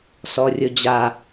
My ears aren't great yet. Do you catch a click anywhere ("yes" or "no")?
no